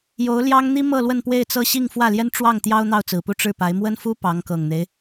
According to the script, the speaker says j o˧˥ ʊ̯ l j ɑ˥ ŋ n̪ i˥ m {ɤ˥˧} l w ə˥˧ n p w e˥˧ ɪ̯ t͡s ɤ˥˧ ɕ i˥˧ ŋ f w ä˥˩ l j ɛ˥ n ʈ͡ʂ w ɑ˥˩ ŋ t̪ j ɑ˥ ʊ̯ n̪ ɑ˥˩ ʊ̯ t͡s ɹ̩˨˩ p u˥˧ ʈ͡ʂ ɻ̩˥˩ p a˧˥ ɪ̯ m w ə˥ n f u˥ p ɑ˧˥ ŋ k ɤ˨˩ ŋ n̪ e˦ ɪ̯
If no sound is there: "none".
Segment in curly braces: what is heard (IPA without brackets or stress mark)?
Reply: ɤ˥˧